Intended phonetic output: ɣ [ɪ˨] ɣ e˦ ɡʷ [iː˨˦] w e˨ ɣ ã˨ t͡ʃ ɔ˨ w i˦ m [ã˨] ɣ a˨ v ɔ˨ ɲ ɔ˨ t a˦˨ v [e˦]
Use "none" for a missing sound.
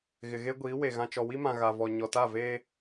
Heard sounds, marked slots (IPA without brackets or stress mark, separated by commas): ɪ˨, iː˨˦, ã˨, eː˦